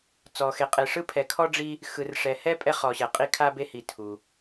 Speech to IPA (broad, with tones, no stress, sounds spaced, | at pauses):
t͡s ɔ˧ x e˧ qʼ e˧ ʂ ɯ˥ pʰ ɛ˧ kʰ ɔ˥ ɖ͡ʐ i˥ | x ɯ˧ r ʂ ɛ˧ h ɛ˥ pʼ ɛ˥ χ ɔ˧ ɕ ɛ˧ qʼ i˥ kʰ a˥ b e˥ h i˧ tʰ u˧